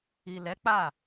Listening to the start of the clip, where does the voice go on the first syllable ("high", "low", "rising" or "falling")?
low